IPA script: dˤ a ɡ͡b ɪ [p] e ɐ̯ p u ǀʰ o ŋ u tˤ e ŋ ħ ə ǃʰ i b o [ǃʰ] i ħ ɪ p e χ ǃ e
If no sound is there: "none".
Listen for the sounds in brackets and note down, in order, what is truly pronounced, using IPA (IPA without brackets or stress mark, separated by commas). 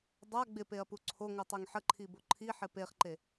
p, ǃʰ